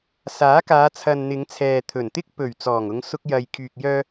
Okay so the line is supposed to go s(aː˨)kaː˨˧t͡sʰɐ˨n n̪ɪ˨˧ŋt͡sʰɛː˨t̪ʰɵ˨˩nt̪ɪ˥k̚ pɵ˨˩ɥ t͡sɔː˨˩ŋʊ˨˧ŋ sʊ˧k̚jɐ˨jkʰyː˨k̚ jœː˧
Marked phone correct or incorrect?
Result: incorrect